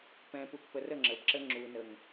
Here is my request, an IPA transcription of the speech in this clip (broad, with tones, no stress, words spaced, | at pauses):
pɛ̃˨ pu˨kpə˨rə˦˨ ŋ͡ǁə˨bǁə˦ ŋ͡ǁu˨ nə˨ŋ